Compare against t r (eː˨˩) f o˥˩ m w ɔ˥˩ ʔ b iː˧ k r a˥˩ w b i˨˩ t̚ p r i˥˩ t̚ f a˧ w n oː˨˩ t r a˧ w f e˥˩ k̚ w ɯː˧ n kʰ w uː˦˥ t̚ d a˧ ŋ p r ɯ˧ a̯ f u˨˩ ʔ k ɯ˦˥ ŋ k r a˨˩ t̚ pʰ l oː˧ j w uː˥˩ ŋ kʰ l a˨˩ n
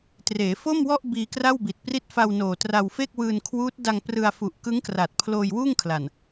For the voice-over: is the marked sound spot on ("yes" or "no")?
no